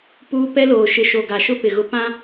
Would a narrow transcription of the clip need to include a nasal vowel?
yes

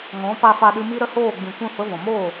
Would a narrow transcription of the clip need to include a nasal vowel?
yes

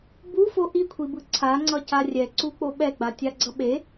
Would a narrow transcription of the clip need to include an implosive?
yes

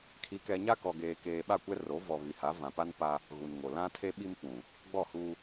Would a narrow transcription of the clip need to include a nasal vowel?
yes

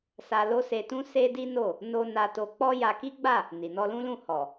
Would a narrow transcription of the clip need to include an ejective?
no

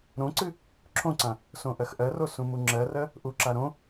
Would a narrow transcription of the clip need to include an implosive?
no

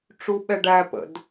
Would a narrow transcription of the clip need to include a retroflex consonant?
yes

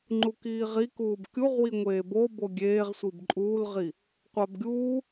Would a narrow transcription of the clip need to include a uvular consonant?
yes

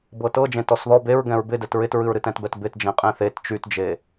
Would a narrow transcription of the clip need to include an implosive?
no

